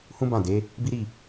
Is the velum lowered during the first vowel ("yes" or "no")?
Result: yes